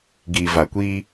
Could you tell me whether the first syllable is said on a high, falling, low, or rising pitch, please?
low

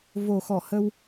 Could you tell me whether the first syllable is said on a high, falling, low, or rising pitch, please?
low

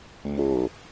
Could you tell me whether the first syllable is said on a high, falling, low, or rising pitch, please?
low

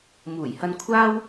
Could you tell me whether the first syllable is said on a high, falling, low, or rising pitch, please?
low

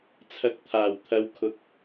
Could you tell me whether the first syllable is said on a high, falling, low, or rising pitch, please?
rising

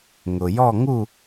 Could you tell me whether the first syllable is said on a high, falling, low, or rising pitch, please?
low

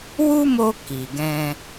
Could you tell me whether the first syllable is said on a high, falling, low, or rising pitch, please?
high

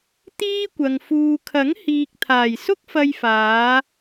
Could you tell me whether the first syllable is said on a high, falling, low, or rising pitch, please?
high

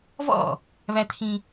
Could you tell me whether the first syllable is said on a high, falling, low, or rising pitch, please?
falling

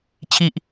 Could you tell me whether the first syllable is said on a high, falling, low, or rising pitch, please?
high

